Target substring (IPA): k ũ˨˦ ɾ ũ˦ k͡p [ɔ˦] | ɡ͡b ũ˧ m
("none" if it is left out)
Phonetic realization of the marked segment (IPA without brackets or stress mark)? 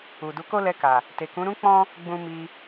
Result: ɔ̃˦